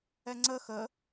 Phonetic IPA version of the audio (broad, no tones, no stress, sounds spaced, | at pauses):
ɛ ŋ͡ǀ ə x ə